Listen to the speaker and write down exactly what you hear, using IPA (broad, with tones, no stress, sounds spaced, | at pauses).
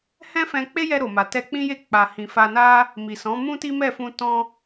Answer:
h ɛ̃˦ f ɛ̃˧ k͡p e˦ j ɛ˧ ɾ o˨ m a˨ t ɛ˧ k͡p ĩ˦ j e˦˨ k͡p a˨ h ĩ˨ f a˧ n a˦ | m i˨ s ɔ̃˨˦ m ũ˦ t i˦ m ɛ˦˨ f ũ˧ t ɔ̃˦